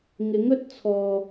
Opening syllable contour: rising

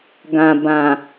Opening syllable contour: low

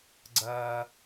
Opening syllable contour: low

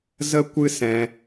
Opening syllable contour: high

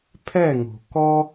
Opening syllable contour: falling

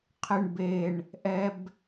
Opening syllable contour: low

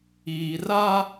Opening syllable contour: low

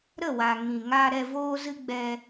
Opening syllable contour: falling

